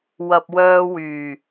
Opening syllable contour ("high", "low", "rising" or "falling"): low